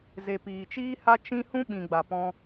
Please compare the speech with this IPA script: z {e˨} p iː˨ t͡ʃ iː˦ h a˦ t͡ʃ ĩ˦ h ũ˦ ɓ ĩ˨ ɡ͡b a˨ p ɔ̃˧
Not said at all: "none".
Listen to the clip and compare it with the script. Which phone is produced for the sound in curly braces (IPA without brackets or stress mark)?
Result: e˨